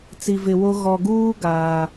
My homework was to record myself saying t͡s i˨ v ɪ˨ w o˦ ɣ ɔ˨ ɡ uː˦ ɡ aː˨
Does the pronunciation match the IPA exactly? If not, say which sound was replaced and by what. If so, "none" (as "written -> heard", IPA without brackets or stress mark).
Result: none